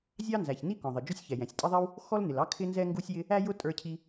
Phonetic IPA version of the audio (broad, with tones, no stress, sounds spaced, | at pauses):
zʲ ɑ˥ n z æ˩ ç n i˥ k ɔ̃˩ ðˤ ɪ˩ d͡ʒ ʊ˥ sʲ ç ɛ˩ j ɛ̃˩ sʲ tʼ ɪ˥ ðˤ i˥ w | x ɔ˥ l n ɪ˩ l ɑ˥ kʰ ɪ˥ n z ɛ˥ ŋ ɡ u˥ sʲ j ɪ˥ | æ˥ j ʊ˥ tʼ ə˞˥ cʰ i˥